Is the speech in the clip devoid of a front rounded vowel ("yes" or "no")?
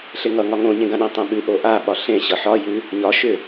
no